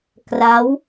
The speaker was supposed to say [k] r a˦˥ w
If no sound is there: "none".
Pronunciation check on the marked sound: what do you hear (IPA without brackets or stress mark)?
k